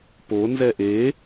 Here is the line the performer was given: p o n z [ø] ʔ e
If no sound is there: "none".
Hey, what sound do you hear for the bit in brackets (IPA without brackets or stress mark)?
ɛ